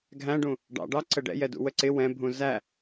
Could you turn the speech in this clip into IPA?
ɡʱ æ̃ ɖ ũ | ɖ ɑ̰ ɖ ɑ ǀ ə ɖ ɛ̰ j ɛ d ṵ w ə ǀ ɪ w ɛ̃ bʱ ũ z æ

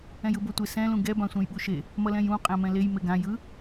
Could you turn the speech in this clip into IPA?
ɛ̃ j ɯ b o tʷ e s ɛ̃ l ũ ɡ ɛ b ã sʷ ɛ̃ j ɓ u ʃ e | m ʌ l ɛ̃ j ũ qʼ ɛ̃ m ɛ̃ l e j m e ɡ ã j ɯ

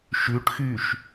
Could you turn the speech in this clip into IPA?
ʃ ʉ ʈ x y ʃ

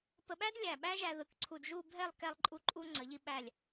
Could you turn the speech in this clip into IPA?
p ə˧ ɓ æ˥ d lʲ æ˧˩ ɓ æ˥ ʒ æ˧ ð ɯ˩˧ k ǀʰ u˧˩ d ʒ u˥˧ bʱ ɛ˥˧ lˠ k ɛ˧ lˠ ǃʼ u˧ ǃʼ u˧ ŋ͡ǀ ə˩˧ ʎ i˧ ɓ æ˧˩ lʲ

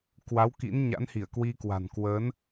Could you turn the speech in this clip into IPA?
k w a˨˦ w k ḭ˧˥ n ɲ a̰˧˥ n h i˧˩ ə̯ k w i˧ k w a̤˨˩ n k w ə˨˦ n

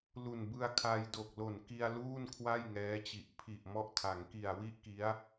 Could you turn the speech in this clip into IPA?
l u˨˩ n b ɯ˧ a̯ kʰ a˧ j d o˨˩ k̚ l o˨˩ n k i˧ a̯ l uː˥˩ n kʰ w a˥˩ j ŋ ɛː˦˥ t͡ɕ i˨˩ ʔ pʰ i˨˩ ʔ m ɔ˦˥ ʔ tʰ a˩˦ ŋ k i˨˩ a̯ w i˥˩ ʔ k i˦˥ a̯

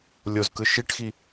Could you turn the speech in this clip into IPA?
lʲ o z k ɯ ʃ i ʈ x i

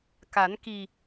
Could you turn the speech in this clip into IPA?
k a˨˩˦ n k i˨˩

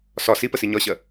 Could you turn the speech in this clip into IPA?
s ɒ s i p ə s i ɲ ɒ ɕ ɜ

